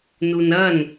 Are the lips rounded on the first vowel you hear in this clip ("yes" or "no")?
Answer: yes